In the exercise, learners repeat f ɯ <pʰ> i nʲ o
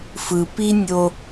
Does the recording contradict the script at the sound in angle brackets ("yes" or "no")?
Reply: yes